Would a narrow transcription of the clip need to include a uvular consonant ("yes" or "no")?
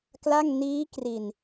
no